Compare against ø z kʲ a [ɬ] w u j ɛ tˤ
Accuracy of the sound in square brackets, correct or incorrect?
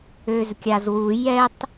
incorrect: z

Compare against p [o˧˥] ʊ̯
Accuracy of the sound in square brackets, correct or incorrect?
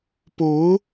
correct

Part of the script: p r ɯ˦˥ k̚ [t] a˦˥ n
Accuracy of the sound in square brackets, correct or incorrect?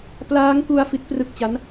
incorrect: t͡ɕ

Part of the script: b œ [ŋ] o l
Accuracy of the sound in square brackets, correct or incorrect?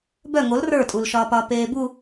correct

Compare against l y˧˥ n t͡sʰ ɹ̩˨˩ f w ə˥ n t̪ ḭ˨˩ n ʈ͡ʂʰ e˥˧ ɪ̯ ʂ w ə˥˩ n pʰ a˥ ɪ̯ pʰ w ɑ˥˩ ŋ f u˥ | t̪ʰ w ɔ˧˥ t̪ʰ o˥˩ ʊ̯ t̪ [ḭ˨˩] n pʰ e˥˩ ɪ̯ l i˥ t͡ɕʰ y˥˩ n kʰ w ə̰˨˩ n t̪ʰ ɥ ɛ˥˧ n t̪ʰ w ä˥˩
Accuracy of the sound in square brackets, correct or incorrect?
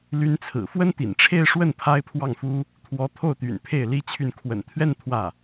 incorrect: y̰˨˩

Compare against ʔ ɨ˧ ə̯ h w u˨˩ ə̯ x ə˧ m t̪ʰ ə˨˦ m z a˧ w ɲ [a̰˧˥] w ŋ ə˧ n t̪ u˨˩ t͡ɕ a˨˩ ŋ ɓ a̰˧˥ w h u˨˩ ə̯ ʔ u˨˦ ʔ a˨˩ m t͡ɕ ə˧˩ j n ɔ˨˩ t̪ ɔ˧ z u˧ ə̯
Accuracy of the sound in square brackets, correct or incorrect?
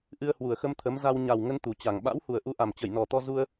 incorrect: a˨˩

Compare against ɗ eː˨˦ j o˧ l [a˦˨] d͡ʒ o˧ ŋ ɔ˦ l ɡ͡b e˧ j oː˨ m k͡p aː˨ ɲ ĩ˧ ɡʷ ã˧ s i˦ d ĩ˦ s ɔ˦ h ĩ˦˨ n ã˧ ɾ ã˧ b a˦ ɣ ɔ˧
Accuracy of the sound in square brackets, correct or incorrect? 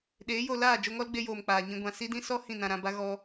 incorrect: aː˦˨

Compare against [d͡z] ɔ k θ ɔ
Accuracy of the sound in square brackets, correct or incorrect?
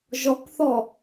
incorrect: ʒ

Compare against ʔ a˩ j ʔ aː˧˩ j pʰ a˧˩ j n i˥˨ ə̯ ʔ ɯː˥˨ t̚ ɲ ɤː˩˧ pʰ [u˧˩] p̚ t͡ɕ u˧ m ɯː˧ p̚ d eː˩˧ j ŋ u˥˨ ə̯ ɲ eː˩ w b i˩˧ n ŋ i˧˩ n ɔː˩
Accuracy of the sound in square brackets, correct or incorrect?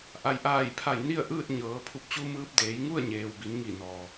correct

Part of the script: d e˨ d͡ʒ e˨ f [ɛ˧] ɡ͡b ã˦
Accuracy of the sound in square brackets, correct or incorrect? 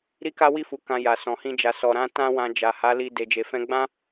incorrect: ɛ̃˧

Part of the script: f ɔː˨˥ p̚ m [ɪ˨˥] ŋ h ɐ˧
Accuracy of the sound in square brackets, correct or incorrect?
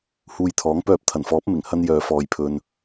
incorrect: ɪ˨˩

